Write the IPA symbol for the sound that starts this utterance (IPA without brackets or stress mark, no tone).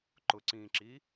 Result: ǃ